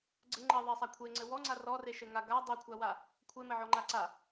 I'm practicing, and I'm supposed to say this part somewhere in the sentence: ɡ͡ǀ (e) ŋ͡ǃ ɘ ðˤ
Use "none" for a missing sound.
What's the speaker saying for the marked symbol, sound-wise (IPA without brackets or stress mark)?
ɘ